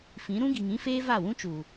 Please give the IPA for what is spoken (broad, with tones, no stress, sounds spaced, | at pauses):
f ĩ˨˦ ɾ ũ˦ ɡ i˨ ŋ ĩ˦ f eː˦ v a˦˨ w ũ˦ t͡ʃ uː˨